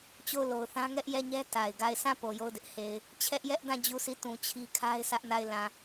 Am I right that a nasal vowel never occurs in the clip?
no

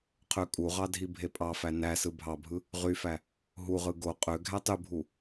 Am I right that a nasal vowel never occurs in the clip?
yes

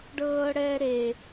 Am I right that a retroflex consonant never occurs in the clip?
no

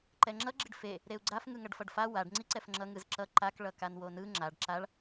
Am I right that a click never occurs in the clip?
no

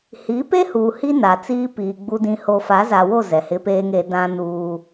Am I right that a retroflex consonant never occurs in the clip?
yes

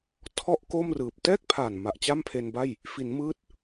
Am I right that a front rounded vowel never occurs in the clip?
yes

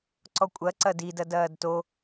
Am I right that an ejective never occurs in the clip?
no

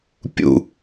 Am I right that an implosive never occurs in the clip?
yes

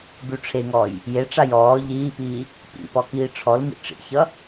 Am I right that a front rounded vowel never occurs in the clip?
yes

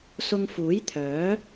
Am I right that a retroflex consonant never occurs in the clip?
yes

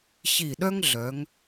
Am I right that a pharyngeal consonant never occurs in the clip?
yes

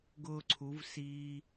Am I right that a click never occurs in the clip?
no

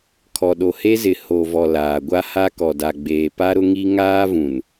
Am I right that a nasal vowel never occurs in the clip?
no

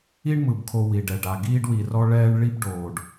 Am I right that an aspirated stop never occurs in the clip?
no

